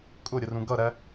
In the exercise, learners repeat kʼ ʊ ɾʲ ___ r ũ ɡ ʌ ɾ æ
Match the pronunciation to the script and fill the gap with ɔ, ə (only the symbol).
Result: ə